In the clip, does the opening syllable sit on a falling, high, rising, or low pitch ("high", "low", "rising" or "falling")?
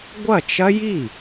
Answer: falling